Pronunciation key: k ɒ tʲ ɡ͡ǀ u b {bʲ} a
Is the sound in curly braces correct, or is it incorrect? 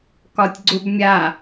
incorrect